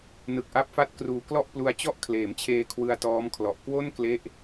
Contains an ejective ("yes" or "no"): no